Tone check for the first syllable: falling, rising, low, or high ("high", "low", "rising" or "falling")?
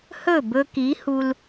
falling